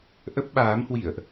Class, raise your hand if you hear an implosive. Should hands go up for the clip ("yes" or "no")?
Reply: yes